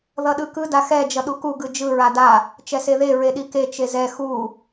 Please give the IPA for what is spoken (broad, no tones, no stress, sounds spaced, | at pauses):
ð ʌ ɗ ɯ k ɯ d a x ɛ d͡ʒ ʌ ɗ u k u ɡ ɯ d͡ʒ ɯ ɹ a d a | t͡ʃ ɛ s e ð e ɹ e ɗ i k e t͡ʃ e z ɛ x u